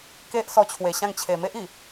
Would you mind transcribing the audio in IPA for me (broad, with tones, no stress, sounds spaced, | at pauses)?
k e˦ ʔ s ɔ˧ t͡ɕʰ w e˨˩ ɕ ã˥˧ ŋ t͡ɕʰ e˨˩ m e˦ ʔ i˨˩